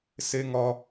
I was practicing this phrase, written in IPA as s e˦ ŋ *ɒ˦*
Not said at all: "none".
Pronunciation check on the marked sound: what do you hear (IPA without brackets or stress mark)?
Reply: ɒ˦